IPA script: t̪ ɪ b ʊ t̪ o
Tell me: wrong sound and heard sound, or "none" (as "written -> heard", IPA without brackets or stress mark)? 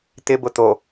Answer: none